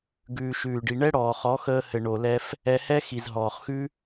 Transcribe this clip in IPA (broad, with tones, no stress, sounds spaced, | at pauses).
ɡ ʉː˨ ʃ ʉː˨ ɖ i˨ ɳ ɛ˦ ɽ ɔː˨ χ ɔ˨˦ x əː˧ h ɘ˨ ɳ o˨ l ɛ˧ f | ɛ˧ h ɛ˦ x i˨ z ɦ ɔː˨ χ x ʉ˦